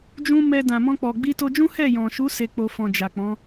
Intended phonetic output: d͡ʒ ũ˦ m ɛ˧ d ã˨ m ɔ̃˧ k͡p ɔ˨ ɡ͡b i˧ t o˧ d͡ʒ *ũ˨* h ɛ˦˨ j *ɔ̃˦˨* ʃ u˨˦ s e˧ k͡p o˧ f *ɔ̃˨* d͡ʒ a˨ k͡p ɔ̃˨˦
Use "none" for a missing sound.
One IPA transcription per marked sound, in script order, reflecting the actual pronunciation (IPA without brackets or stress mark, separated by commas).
ũ˦, ɔ̃˨, ɔ̃˨